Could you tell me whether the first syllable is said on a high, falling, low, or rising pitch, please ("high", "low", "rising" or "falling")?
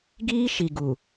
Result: high